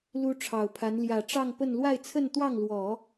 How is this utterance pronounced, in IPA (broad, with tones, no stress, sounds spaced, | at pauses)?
l u˥ ʈ͡ʂʰ ɑ˨˩ ʊ̯ pʰ a˧˥ n l j ä˨˩ ʈ͡ʂ ɑ˥˧ ŋ p ə˥˧ n l w a˥˧ ɪ̯ t͡sʰ ə˥˧ n t̪ w ɑ˥˩ ŋ l w ɔ˨˩˦